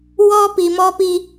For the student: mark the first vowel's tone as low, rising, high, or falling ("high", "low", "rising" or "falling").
high